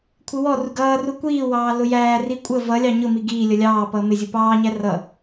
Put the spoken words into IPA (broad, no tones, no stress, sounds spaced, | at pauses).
kʷʰ ɪ w ɔ r u ɡ ʌː r u kʷ iː w ɑː l ʊ j æː r i kʷʼ ə v ʌ lʲ ɑ ɲ ʊ m i ɡ iː lʲ ʌ lʲ ɑː p ʌː m ɪ zʲ u p ɑː ɲ æ r ʌ